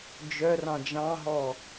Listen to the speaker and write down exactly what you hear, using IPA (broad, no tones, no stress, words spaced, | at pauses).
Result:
d͡ʒœrɑ̃ d͡ʒɑ̃ɦɔ